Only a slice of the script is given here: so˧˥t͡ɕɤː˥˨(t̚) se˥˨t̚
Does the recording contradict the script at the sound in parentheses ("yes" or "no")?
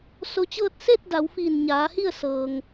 no